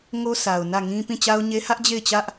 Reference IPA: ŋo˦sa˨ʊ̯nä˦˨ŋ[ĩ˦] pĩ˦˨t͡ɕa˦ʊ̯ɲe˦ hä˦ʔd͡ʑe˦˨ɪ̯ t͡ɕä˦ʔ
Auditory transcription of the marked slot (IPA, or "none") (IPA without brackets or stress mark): ĩ˦